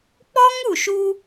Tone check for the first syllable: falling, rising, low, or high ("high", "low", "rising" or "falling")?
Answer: high